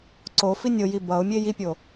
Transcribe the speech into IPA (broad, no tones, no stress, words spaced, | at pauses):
ǀofi nʲoji bʌʊ̯mʲe jipʲo